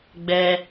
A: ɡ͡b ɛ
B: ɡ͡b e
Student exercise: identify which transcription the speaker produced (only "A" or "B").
A